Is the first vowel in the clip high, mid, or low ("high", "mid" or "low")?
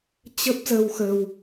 mid